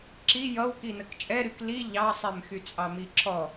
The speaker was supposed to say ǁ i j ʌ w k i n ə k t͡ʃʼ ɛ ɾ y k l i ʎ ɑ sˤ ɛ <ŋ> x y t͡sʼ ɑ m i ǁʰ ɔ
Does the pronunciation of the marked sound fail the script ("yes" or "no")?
yes